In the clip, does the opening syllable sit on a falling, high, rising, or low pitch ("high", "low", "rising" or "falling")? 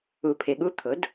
low